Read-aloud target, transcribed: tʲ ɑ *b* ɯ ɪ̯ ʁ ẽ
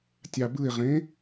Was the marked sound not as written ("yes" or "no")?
no